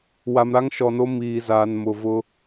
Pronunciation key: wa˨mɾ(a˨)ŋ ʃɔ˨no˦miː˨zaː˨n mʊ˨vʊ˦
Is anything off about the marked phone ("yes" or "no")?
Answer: yes